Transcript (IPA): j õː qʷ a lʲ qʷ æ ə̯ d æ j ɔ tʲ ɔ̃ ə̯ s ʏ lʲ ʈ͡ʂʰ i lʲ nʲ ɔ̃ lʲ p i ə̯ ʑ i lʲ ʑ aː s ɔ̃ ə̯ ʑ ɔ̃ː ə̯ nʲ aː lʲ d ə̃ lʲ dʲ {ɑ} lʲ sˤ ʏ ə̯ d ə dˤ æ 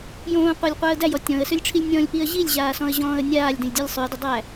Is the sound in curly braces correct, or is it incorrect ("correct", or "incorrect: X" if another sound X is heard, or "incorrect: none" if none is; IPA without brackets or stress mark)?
incorrect: ɔ